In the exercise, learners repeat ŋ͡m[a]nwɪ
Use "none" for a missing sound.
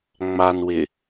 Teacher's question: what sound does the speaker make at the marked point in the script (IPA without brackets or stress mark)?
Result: a